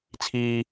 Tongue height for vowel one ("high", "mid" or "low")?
high